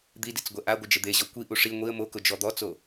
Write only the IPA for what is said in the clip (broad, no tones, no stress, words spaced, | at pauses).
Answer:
d̪idit͡s ɡʷɛʔaɡʷɪ d͡ʒɪd̪eʑɔ kʷiʔu ʂi ŋʷiə̯ mokʊ d͡ʒɔd̪ɔt͡so